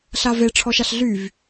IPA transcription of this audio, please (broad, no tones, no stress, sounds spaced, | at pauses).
ɬ a v e ʈ͡ʂʰ ɔ ʃ a ɬ ɮ y v